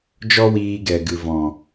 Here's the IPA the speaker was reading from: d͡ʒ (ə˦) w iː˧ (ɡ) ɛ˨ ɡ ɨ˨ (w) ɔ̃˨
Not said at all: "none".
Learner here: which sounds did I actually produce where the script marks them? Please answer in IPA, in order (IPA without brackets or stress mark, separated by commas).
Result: ɔ˦, ɡ, v